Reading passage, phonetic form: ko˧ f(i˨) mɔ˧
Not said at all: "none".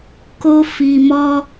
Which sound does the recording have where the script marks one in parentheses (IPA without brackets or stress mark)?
i˨